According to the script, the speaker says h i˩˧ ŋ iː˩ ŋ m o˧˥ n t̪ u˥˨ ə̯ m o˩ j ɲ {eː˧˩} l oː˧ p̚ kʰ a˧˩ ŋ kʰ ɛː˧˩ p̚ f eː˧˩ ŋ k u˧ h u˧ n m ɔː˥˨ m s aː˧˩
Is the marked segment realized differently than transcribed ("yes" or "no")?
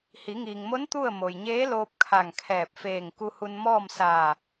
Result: yes